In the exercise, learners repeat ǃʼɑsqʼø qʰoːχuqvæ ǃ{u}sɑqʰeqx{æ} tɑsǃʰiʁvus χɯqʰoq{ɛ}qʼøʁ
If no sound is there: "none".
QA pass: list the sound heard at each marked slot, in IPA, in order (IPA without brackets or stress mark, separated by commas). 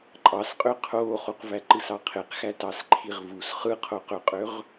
ɯ, æ, ø